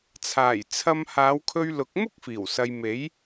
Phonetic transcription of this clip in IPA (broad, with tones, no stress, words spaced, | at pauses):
t͡sʰaː˨˩jt͡sʰɐ˧m haː˨˧wkʰɵ˧ɥlʊ˨˥k̚ mʊ˥k̚fiː˨˩wsɐ˨j me˨˥j